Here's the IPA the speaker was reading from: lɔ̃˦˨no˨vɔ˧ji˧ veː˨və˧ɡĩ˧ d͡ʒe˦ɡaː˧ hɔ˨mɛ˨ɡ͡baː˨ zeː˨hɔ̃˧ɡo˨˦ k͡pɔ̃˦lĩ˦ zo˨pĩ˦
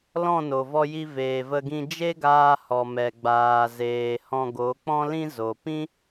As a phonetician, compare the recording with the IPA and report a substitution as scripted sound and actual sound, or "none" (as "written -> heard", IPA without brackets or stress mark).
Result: none